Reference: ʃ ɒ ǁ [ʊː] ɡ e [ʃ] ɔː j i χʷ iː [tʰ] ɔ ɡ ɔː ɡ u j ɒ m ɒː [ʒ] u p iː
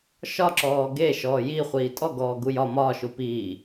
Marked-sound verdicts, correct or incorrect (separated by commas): incorrect, correct, incorrect, incorrect